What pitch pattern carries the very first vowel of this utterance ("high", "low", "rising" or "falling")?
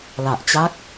low